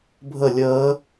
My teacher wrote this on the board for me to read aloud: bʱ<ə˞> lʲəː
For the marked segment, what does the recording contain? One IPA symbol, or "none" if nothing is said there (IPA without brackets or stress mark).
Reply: ə